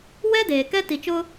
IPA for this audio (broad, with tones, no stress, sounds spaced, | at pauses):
w ɛ˦ d eː˨ k ɛ˦ t i˨ t͡ʃ ʊ˦